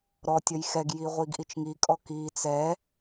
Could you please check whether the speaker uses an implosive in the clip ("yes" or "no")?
no